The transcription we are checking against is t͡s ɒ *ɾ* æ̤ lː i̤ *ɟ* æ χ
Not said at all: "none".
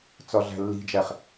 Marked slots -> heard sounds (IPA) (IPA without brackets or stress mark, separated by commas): ɮ, d͡ʒ